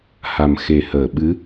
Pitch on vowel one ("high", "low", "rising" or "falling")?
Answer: low